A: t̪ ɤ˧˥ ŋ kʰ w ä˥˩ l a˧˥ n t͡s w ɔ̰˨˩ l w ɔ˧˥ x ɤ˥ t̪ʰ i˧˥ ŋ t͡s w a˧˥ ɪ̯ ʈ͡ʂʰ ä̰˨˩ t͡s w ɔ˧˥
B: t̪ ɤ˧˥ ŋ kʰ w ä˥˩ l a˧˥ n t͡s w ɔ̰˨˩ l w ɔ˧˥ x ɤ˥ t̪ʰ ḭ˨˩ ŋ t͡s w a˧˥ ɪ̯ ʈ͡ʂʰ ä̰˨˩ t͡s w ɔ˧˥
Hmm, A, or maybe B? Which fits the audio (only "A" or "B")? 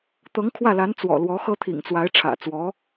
B